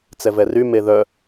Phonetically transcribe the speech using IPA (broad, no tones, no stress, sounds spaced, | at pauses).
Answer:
t͡s ɛ v ɛ r y m e ð œ